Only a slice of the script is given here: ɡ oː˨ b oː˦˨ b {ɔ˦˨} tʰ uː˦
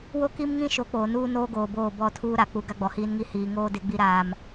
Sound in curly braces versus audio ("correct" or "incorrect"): correct